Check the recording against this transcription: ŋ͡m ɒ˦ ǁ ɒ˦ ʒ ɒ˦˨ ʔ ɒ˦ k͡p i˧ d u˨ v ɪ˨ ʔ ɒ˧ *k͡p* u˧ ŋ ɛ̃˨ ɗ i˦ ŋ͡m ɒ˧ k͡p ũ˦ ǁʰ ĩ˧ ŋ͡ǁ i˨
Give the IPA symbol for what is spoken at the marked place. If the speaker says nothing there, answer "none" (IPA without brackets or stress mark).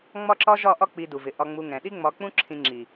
ŋ͡m